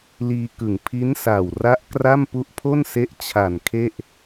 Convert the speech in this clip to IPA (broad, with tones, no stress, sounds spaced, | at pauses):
l iː˧ k ɯ˨˩ ŋ pʰ i˦˥ n s a˨˩ w r a˦˥ ʔ k r a˥˩ m p u˦˥ ʔ pʰ o˥˩ n s e˦˥ ʔ t͡ɕʰ a˨˩ n kʰ e˥˩ ʔ